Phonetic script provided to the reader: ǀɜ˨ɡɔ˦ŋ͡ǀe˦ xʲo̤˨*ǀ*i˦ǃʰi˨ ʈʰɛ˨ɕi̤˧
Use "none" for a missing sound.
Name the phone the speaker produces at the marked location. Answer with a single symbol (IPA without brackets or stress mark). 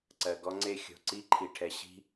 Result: ǀ